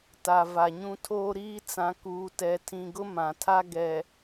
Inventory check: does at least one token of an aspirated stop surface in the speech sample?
yes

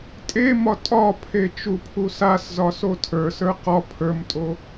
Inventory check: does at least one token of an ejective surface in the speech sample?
yes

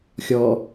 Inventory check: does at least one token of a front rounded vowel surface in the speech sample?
no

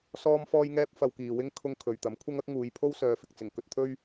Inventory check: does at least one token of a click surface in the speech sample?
no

